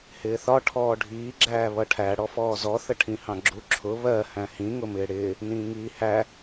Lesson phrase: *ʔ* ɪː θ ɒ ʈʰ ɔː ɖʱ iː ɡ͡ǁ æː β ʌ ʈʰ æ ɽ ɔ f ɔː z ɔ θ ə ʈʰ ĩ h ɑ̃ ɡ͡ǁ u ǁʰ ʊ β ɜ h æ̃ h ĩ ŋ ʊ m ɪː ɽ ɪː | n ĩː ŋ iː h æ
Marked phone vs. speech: incorrect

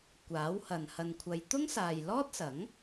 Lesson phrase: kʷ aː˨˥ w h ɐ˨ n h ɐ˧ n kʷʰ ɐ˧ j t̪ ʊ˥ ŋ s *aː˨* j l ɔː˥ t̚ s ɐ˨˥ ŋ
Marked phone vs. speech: correct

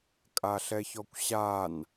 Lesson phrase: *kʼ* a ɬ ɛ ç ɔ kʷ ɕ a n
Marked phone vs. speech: correct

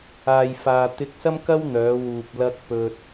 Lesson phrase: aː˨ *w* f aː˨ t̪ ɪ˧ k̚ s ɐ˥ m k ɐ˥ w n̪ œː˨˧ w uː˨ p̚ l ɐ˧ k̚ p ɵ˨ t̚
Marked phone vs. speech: incorrect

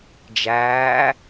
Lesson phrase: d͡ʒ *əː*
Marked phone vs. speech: incorrect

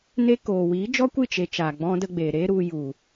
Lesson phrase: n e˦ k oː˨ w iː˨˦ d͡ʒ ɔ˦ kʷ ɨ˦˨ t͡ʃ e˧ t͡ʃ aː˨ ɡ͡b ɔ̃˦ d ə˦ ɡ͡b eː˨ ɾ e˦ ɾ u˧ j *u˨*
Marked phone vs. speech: correct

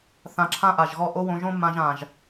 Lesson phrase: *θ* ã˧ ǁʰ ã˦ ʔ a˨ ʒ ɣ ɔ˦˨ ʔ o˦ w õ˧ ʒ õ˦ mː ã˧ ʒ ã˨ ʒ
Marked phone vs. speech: correct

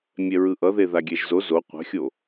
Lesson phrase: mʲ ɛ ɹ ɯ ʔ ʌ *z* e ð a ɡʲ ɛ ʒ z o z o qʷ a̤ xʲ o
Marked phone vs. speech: incorrect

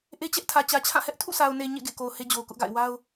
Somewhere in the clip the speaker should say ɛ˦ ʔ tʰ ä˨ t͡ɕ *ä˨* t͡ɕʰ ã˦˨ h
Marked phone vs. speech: correct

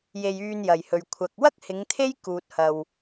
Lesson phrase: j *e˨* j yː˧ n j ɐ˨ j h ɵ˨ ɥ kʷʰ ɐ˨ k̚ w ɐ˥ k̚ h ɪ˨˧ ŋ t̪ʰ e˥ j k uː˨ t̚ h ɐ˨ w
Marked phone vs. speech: incorrect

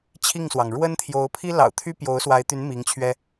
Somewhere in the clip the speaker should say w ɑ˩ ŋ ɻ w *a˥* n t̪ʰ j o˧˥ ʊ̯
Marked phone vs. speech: incorrect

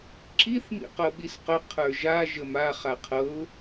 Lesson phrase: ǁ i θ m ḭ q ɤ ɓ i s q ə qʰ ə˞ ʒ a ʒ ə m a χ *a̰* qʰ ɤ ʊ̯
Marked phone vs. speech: incorrect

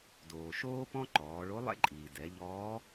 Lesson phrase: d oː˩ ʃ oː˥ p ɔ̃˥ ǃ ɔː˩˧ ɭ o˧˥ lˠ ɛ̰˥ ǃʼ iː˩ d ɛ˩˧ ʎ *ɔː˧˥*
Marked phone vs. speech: correct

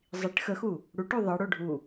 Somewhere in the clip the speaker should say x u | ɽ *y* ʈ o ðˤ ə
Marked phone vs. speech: incorrect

